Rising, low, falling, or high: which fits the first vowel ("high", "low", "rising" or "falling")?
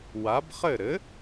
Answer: rising